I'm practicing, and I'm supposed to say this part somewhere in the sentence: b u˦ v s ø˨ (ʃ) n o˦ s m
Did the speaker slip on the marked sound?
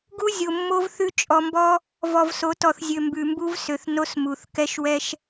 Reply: yes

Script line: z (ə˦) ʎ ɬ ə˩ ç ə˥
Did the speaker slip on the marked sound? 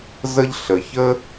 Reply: no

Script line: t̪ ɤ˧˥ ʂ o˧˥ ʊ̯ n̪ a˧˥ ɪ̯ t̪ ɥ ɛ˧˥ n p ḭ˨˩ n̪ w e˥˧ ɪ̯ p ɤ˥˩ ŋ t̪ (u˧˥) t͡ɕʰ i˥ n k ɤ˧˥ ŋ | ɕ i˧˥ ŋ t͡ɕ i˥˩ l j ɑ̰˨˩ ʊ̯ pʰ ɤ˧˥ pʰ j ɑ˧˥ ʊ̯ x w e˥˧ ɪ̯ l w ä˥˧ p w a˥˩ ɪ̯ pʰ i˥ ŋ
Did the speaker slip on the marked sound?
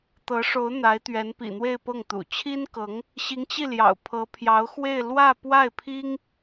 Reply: yes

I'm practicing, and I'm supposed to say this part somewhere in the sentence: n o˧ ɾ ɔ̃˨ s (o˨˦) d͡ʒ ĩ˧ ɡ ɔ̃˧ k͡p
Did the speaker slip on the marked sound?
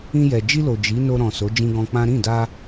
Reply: no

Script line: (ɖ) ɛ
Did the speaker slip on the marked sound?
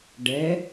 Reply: no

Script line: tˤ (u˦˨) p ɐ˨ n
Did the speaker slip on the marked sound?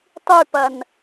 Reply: yes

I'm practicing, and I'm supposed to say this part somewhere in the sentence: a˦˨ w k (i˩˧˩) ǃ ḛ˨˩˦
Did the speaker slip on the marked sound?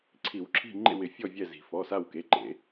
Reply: yes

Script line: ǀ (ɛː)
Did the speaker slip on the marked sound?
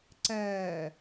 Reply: no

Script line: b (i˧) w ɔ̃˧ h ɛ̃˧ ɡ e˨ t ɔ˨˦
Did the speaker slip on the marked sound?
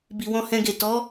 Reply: yes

